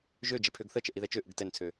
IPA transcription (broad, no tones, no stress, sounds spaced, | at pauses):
ʒ ø d͡ʒ ɛ pʰ ø ɡ θ ə t͡ʃ ə ʔ i ð ɛ t͡ʃ ø ʔ ɯ ɡ t ɛ n t͡sʰ ø